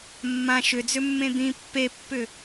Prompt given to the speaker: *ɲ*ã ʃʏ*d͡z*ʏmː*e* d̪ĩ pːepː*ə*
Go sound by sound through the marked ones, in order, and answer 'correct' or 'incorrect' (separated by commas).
incorrect, correct, incorrect, incorrect